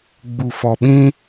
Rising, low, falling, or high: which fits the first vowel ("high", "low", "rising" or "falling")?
low